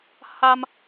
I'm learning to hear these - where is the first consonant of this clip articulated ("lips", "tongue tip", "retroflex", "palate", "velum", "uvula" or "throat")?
throat